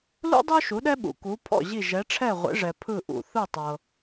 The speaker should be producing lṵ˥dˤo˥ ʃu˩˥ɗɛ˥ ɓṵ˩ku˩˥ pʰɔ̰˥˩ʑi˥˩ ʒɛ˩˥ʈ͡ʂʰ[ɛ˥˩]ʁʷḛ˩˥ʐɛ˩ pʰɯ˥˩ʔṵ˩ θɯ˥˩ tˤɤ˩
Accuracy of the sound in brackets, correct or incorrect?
correct